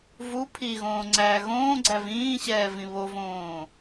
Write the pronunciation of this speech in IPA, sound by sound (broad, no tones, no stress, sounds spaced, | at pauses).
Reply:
v u pʰ i ɣ õː ŋ͡ǀ æː ɣ õː ɡ͡ǀ æ v ĩː ɕ ɛː v ĩ β o v õː